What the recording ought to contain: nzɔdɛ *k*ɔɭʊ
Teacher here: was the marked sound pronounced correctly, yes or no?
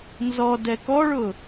yes